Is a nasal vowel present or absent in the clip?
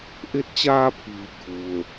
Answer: absent